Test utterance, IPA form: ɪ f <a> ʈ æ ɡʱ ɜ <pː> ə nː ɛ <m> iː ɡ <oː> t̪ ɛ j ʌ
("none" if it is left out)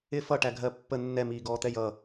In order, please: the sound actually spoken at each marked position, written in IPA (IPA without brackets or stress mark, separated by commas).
ʌ, pː, m, ɔː